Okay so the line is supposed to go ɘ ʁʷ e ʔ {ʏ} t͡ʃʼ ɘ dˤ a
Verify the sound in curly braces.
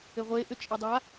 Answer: correct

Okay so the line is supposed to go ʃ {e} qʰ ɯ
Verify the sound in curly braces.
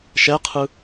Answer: incorrect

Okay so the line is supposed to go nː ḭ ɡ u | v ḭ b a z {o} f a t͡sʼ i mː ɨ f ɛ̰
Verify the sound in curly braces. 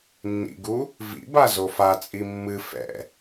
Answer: correct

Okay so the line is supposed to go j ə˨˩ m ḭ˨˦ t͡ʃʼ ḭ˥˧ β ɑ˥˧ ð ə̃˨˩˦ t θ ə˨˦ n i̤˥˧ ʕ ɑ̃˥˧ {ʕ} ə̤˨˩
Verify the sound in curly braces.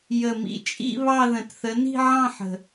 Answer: incorrect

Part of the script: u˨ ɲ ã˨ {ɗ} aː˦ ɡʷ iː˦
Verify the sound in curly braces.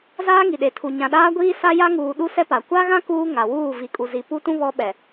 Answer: correct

